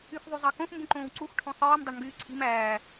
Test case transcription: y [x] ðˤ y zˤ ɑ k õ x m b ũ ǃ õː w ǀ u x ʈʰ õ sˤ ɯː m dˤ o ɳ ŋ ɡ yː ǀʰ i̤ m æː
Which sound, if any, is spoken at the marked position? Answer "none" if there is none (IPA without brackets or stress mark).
x